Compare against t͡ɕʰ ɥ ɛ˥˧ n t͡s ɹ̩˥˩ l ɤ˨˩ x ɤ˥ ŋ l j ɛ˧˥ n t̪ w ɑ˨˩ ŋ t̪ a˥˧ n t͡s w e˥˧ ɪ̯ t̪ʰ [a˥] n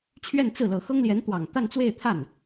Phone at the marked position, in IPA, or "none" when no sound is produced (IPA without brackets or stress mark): a˥˩